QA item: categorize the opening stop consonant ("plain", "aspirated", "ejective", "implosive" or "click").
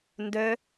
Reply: plain